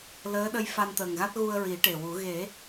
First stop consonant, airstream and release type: implosive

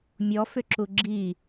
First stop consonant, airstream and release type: click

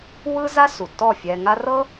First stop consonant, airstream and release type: plain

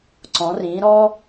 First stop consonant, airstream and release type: click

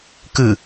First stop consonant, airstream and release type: plain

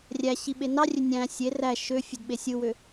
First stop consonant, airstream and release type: implosive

